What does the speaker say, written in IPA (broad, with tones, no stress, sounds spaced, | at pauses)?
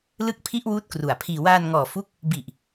l ɯ˦˥ k̚ pʰ i˦˥ ʔ w uː˦˥ t̚ k r u˨˩ a̯ pʰ iː˧ w aː˧ n ŋ ɔː˨˩ f u˦˥ k̚ | b i˨˩ ʔ